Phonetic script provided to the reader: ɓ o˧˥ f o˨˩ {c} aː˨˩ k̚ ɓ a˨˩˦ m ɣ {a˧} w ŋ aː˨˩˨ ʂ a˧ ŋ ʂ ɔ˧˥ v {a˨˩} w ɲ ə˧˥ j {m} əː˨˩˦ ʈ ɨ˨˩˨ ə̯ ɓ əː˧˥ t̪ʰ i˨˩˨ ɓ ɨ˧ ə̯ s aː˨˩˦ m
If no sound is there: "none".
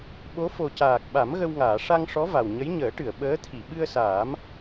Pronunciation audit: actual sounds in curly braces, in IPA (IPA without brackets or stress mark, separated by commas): c, ə˧, a˨˩, ɲ